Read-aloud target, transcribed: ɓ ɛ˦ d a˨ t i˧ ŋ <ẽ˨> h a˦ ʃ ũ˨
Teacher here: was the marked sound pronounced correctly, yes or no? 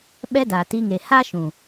no